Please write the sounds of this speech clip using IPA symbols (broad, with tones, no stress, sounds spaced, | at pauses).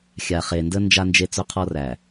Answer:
xʲ a˨ χ e˨ n d ə˦ n d͡ʒ a˦ n d͡ʒ e˦ t͡s ɵ˦ qʰ ɔ˦ r æ˨